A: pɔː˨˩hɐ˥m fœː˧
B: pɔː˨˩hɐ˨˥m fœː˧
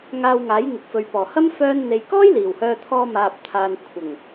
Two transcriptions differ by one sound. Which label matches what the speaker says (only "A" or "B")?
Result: A